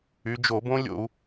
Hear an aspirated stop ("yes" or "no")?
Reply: no